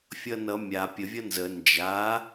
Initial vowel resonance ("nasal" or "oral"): oral